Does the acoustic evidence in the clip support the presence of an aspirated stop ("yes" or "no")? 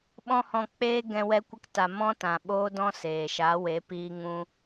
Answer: no